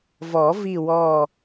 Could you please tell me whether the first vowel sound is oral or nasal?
oral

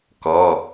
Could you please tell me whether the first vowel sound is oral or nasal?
oral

